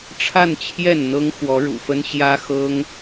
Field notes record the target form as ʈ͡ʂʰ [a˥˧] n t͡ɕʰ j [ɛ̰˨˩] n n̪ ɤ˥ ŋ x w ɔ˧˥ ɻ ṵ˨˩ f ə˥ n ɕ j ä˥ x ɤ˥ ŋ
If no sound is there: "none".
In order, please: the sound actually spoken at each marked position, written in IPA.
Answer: a˥˧, ɛ˥˩

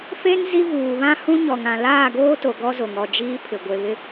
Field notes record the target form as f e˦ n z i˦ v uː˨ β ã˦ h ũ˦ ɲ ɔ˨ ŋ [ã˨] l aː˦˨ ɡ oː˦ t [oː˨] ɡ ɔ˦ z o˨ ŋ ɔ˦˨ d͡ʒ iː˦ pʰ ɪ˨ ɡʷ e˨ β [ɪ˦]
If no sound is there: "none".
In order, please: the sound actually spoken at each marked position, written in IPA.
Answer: ã˨, o˨, ɪ˦

